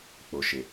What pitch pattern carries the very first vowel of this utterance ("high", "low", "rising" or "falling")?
low